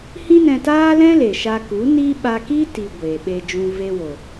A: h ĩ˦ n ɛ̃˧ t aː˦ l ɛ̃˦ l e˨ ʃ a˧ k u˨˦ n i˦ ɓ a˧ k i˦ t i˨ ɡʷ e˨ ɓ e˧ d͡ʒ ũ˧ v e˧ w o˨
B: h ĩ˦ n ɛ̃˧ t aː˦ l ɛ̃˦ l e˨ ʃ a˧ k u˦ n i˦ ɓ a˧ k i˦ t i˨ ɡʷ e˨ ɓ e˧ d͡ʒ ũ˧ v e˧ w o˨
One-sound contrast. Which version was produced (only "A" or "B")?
A